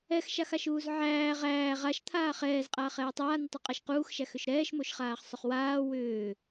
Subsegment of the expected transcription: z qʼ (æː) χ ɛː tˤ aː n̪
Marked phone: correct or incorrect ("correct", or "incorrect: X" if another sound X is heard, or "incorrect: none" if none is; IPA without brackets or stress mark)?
incorrect: aː